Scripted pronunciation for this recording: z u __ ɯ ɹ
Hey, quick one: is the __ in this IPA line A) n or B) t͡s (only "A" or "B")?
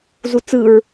B